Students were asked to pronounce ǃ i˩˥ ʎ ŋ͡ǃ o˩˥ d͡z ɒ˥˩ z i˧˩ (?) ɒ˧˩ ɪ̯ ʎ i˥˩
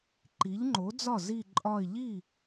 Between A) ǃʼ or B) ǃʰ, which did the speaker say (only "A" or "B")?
A